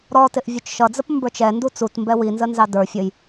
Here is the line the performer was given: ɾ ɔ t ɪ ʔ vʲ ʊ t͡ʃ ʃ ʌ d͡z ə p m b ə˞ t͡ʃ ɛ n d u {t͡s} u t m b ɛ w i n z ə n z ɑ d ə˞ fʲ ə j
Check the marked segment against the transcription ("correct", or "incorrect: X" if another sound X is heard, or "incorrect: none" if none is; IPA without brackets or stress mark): correct